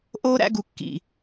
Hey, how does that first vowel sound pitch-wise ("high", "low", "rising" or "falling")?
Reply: high